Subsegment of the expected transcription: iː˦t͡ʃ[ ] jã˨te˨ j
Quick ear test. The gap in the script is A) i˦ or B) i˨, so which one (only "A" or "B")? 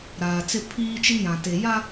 A